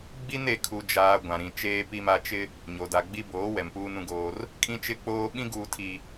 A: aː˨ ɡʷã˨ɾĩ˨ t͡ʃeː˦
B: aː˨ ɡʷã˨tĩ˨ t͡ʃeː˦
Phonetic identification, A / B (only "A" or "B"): A